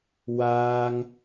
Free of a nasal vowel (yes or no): yes